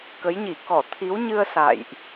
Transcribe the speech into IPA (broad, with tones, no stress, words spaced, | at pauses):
kə˨˦jɲi˧˩kɔ˧˩ t̪ʰi˨˦wɲɨ˧ə̯ sa̰ː˧˨jʔ